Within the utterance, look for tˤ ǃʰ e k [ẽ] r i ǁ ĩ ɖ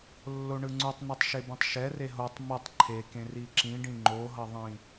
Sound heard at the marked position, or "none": ẽ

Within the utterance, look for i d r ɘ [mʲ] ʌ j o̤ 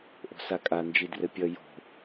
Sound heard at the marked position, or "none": pʲ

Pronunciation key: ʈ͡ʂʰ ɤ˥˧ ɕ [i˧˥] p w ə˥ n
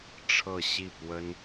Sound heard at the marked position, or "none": i˥˩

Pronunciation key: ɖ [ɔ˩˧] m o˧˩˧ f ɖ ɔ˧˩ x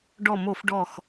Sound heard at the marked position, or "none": ɔ˧˩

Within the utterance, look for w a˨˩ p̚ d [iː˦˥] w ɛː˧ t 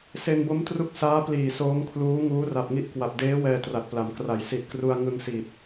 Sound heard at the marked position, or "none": eː˦˥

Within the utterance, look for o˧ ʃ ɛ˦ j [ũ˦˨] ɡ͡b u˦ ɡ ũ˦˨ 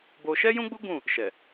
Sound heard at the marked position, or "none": ũ˦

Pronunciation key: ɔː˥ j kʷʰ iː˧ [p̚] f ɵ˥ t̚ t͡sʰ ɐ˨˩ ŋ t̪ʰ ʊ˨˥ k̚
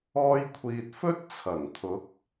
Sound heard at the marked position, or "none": t̚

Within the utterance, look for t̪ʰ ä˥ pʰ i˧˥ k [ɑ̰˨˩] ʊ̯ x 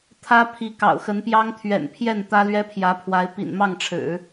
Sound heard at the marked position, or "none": ɑ̰˨˩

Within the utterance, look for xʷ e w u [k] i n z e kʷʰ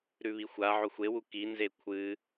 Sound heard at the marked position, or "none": k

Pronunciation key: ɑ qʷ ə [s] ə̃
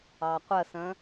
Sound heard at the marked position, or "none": s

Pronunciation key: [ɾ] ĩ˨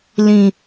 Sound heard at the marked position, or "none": l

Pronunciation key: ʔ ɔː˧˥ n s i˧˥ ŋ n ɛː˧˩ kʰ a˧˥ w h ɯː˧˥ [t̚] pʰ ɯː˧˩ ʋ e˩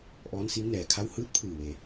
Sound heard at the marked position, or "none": t̚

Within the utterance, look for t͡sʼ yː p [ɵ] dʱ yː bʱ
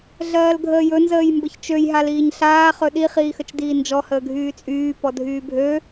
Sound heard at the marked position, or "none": ɔ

